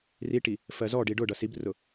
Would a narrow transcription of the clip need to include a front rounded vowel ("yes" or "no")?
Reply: no